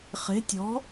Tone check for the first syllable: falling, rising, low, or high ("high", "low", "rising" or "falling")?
rising